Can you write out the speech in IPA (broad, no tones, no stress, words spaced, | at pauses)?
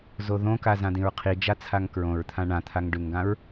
zoðõka zãdĩɹqʰid͡ʒa t͡sʰaŋkɹõɹt̪ʰã ɳãt̪ʰaŋ ɖʉŋɡãɹ